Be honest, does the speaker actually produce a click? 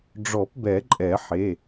yes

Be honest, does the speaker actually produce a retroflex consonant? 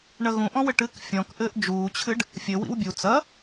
yes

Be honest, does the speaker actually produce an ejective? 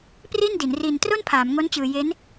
no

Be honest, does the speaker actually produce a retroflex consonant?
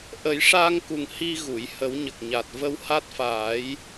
yes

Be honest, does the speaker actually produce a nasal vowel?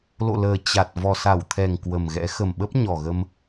no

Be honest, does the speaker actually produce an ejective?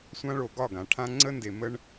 no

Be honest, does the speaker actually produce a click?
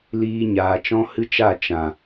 no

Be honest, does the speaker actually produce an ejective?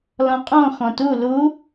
yes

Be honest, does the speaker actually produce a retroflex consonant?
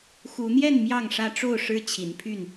yes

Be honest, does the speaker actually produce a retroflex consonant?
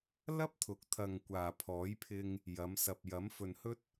no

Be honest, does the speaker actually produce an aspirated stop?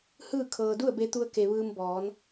yes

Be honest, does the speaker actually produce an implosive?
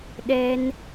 yes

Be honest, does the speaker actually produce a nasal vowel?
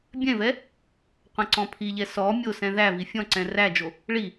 yes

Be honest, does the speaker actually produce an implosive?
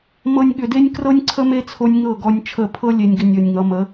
yes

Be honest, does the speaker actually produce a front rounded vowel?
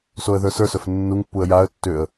yes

